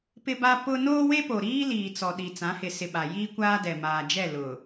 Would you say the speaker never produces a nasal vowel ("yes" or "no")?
no